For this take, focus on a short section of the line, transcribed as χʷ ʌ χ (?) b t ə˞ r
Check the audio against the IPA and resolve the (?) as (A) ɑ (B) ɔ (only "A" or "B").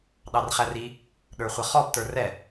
B